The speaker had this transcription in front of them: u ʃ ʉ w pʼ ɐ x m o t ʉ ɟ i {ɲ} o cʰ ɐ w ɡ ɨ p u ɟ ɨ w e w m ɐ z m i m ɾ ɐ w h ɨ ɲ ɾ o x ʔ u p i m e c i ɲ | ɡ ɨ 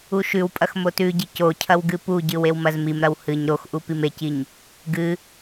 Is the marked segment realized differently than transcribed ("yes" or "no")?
yes